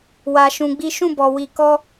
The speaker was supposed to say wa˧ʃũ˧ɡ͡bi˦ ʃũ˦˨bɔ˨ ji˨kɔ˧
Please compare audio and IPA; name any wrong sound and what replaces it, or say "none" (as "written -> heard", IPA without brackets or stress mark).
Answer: j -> w